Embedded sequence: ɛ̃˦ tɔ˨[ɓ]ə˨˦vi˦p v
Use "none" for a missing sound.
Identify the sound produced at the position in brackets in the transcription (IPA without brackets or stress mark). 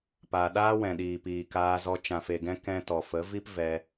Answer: f